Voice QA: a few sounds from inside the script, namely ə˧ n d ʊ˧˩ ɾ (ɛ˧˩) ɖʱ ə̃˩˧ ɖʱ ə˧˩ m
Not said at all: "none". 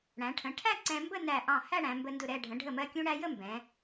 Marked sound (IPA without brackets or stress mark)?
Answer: ɛ˧˩